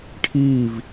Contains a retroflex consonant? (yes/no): yes